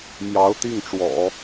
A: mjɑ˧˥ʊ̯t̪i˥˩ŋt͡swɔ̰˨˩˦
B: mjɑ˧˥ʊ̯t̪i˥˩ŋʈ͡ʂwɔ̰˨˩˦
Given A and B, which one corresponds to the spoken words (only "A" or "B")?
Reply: B